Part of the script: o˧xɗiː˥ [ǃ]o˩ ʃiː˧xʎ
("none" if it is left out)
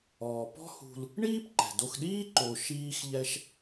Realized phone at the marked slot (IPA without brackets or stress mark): ǃ